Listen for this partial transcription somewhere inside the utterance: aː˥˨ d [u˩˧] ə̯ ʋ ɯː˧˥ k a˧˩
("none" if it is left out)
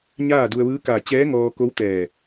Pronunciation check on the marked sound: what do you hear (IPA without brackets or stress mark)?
u˧